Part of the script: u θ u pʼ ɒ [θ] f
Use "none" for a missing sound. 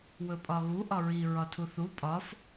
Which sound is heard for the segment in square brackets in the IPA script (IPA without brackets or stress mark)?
none